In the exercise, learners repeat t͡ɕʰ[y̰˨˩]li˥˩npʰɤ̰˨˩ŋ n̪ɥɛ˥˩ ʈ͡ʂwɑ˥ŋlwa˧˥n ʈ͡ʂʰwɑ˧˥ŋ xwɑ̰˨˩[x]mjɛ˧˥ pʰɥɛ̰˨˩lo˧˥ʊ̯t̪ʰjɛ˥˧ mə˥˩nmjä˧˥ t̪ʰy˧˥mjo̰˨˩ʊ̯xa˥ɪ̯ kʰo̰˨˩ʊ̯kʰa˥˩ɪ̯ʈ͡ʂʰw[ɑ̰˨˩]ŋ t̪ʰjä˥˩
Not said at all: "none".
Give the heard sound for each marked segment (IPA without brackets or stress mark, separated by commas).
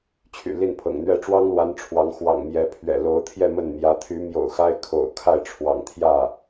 y̰˨˩, ŋ, ɑ̰˨˩